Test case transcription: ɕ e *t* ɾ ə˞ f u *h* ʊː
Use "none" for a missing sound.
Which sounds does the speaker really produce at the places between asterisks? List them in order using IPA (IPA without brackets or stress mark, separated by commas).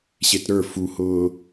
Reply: t, h